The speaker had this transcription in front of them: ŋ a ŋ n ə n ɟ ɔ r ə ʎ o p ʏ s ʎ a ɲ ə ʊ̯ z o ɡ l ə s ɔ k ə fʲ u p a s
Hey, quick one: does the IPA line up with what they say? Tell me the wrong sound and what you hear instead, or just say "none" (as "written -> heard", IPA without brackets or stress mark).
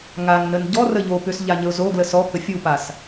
none